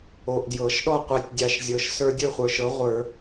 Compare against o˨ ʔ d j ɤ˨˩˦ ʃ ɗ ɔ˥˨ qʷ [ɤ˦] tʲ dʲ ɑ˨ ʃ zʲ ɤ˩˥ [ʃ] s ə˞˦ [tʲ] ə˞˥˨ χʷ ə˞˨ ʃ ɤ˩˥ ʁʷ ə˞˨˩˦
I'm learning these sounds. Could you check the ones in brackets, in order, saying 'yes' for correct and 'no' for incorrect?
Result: yes, yes, no

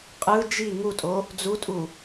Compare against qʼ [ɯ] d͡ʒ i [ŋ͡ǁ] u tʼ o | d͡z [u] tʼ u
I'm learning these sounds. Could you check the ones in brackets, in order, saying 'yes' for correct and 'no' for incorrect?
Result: yes, no, yes

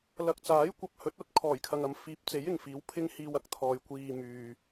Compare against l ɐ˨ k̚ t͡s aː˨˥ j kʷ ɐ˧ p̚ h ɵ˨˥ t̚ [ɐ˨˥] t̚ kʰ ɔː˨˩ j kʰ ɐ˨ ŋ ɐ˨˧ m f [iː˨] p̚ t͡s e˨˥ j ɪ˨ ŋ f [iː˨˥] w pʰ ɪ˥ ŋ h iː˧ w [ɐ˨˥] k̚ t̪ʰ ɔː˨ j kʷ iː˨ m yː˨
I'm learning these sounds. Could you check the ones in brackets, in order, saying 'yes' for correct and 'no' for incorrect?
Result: yes, no, yes, yes

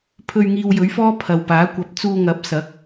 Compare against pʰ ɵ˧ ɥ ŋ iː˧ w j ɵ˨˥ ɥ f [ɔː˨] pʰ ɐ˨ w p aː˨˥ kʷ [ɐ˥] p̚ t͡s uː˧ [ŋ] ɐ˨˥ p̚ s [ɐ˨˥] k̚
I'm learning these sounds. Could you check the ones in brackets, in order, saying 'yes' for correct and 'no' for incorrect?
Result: no, no, yes, yes

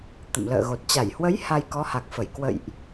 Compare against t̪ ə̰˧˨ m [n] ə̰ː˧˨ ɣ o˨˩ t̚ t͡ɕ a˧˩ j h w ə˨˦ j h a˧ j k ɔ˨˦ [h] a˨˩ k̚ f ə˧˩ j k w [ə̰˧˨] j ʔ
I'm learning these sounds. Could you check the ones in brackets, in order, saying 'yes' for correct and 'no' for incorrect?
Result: no, yes, yes

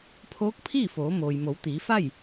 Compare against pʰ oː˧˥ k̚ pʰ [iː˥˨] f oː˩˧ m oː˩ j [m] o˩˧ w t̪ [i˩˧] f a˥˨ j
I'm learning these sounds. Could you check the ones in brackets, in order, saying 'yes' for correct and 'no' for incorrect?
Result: yes, yes, no

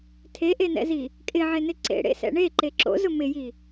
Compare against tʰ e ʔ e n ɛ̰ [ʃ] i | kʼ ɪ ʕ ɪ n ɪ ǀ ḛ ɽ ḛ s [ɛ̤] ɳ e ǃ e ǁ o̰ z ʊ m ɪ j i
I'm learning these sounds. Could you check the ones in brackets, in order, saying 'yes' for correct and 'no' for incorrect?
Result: no, no

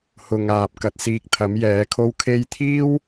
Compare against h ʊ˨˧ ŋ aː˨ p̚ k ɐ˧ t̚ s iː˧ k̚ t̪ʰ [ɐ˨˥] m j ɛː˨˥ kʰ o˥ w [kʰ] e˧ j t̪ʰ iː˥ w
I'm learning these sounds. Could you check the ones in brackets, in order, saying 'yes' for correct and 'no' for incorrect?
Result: yes, yes

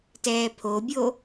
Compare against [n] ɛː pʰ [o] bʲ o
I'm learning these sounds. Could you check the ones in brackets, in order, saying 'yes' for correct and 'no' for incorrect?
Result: no, yes

